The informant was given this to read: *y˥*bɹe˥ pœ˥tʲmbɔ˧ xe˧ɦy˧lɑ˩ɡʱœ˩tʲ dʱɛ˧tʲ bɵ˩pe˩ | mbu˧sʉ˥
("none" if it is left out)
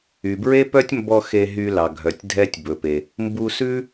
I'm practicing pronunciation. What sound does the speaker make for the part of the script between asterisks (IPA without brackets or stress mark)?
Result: y˩